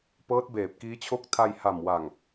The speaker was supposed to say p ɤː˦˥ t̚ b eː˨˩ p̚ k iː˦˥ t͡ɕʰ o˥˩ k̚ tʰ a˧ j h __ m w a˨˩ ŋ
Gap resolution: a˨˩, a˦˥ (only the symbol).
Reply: a˨˩